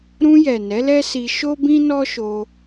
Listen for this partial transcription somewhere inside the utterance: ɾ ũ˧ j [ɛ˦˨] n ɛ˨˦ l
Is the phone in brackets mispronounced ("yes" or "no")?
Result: yes